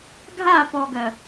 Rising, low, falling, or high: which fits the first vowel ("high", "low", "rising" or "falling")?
falling